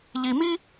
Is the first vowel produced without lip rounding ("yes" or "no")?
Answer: yes